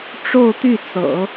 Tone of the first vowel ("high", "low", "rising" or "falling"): falling